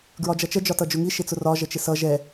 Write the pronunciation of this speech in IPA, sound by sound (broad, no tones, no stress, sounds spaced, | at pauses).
ɡ ɹ ɒ d͡ʒ ʌ t͡ʃ ə d͡ʒ ɒ t ʌ d͡ʒ ʊ ŋ i ʃ ɪ t͡s ʊ r ɒ ʒ ə t͡ʃ ɪ s ʌ ʒ ɛ